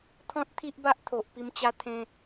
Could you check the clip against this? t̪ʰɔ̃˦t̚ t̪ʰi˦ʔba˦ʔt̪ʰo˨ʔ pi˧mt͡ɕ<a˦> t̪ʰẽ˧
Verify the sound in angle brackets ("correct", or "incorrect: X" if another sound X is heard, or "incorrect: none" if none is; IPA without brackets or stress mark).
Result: correct